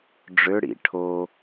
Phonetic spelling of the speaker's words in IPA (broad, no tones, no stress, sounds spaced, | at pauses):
ɖ͡ʐ ø ɽ ḭ ʈʰ o